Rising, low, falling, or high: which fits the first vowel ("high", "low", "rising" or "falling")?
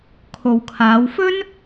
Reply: low